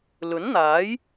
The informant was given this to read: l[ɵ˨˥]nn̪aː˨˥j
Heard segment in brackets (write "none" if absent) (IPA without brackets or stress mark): ɵ˨˥